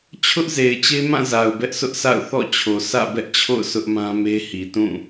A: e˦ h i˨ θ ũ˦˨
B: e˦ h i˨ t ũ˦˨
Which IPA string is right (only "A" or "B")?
B